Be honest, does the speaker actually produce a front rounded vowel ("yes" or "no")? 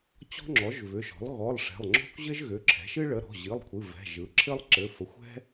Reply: yes